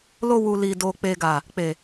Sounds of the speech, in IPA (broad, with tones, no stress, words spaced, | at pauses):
lo˧ wu˨ li˨ do˨ k͡pe˨ɡa˨ | k͡pe˨